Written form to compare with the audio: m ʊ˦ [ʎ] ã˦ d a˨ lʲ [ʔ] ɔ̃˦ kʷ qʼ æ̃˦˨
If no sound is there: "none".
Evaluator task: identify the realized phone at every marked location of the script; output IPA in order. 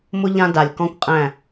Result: ʎ, k

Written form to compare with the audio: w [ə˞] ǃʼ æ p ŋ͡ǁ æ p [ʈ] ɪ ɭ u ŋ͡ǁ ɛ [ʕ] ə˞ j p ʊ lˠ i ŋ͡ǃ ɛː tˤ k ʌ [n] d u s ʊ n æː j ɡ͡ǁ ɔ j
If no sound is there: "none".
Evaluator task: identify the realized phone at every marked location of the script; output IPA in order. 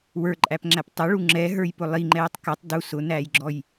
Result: ə˞, tˤ, ɦ, tˤ

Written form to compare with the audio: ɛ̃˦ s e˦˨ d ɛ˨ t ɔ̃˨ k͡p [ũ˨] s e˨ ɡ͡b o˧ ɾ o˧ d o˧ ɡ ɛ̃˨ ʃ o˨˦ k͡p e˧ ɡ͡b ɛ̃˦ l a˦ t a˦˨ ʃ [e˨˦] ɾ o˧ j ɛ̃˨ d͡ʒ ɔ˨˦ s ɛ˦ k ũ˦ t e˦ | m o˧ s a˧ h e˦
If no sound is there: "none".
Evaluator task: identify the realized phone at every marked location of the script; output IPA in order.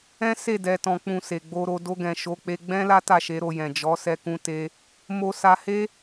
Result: ũ˨, e˨˦

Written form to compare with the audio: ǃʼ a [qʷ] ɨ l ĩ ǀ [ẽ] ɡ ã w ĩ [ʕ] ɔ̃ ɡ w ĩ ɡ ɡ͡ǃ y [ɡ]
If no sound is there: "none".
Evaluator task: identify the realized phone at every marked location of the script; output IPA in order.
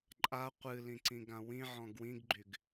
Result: qʷ, ĩ, ʕ, ɡ

